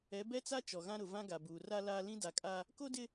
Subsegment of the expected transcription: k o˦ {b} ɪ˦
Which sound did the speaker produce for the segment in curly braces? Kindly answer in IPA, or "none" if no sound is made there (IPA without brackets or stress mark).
d